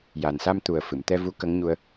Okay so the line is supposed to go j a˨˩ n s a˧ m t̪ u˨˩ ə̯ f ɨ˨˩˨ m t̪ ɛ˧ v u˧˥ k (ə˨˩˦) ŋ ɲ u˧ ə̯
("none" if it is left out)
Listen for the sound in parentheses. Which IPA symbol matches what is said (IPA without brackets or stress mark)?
ə˧˥